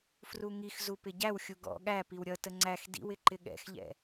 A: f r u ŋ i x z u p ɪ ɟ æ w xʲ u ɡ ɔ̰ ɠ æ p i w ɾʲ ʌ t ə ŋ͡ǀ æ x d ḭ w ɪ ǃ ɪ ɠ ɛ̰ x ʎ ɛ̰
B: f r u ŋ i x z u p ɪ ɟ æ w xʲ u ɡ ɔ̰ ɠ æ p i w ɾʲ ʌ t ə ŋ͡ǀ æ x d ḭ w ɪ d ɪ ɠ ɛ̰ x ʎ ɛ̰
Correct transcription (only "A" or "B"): A